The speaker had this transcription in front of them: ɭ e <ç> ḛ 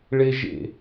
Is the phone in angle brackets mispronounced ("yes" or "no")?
yes